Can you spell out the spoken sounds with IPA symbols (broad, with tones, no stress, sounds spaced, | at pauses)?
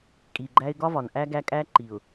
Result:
kʼ i˨ ɡ͡ǃ æ˦ ɪ̯ ɡ ɒ˦ v ɒ˨ n ʔ æ˦ ɡ æ˦ kʼ æ˦ ǃ i˨ ʊ̯